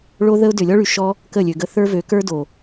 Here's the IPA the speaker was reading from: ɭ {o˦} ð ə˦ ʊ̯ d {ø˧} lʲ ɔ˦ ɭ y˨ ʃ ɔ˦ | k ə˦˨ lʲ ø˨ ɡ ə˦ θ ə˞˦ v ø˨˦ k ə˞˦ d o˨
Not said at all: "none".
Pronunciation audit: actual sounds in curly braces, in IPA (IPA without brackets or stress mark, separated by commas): o˦, ø˨